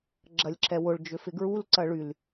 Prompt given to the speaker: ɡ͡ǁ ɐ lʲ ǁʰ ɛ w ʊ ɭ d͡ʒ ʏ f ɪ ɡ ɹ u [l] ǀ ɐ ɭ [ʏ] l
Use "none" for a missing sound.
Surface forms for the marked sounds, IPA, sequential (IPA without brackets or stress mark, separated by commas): l, y